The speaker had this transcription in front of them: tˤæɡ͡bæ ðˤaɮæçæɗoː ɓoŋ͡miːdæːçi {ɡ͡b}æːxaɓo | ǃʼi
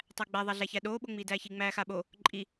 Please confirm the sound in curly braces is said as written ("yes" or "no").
no